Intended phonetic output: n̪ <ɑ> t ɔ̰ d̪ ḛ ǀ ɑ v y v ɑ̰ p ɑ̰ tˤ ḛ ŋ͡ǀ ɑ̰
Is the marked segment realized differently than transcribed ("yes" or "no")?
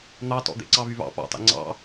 no